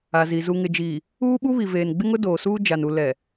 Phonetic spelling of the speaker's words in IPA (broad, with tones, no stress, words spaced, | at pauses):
a˨zi˨ zu˨ŋɪ˨d͡ʒiː˨ | uː˦ɓu˦βi˨ veː˨nɡ͡bɪ˦ŋʊ˦ doː˨suː˦ d͡ʒa˨nu˨ lɛ˨